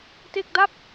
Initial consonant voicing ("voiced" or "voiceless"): voiceless